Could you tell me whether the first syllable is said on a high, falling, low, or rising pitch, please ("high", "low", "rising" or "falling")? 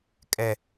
high